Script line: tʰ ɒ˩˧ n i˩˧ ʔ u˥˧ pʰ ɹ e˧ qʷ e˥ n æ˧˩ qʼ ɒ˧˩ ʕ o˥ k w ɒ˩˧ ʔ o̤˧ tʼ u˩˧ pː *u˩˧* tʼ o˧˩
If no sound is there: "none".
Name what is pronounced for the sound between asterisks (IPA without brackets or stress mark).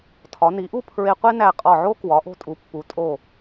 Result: u˩˧